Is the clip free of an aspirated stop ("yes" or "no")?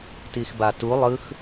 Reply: yes